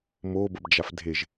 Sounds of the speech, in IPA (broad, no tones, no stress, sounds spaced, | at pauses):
m o b ə b d͡ʒ a f dʱ e ʒ